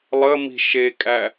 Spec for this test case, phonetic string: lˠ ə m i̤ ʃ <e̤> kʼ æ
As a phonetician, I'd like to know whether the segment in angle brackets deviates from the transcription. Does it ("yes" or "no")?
yes